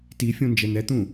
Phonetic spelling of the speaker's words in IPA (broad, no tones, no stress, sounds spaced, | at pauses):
t i fʲ õ n d͡ʒ ɛ n̪ ɛ t̪ ũ